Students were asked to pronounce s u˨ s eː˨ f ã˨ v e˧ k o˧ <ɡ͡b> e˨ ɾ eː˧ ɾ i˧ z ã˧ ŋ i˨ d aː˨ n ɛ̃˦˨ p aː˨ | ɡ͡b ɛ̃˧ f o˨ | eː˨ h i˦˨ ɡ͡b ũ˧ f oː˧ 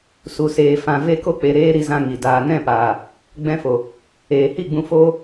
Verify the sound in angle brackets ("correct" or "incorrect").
incorrect